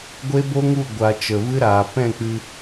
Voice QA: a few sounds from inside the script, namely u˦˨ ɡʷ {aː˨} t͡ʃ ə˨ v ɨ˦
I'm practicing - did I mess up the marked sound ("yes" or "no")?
yes